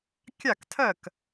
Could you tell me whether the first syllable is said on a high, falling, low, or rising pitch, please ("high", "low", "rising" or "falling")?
falling